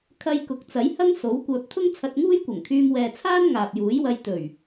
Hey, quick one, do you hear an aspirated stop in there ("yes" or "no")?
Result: yes